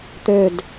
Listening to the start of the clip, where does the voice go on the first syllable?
low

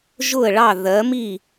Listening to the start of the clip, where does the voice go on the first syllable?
falling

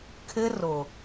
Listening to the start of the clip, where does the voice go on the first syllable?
high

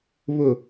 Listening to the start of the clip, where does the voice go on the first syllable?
low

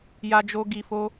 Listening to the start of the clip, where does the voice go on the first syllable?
high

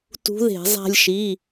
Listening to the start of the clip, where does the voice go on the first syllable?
rising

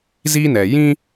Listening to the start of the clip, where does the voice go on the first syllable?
high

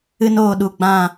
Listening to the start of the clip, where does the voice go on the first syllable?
high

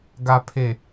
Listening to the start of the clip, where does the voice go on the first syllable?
low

